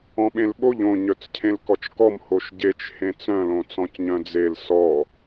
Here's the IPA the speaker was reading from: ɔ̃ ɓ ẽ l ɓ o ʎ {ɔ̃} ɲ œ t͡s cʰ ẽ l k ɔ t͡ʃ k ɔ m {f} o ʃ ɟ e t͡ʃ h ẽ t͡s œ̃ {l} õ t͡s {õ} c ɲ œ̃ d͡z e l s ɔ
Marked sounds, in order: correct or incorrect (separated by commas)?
incorrect, incorrect, correct, incorrect